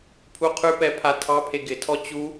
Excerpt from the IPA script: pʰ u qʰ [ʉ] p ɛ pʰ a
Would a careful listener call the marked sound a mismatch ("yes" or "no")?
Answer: no